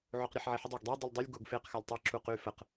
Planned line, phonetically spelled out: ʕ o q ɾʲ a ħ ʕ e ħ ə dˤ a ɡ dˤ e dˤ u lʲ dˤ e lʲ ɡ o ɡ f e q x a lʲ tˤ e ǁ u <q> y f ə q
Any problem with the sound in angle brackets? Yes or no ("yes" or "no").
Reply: no